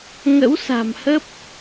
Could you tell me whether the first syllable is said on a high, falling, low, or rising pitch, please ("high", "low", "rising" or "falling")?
rising